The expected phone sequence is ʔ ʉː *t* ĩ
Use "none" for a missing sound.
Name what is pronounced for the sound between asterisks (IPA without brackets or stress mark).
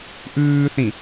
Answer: θ